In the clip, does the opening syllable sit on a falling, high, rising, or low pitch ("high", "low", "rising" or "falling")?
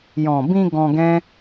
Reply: low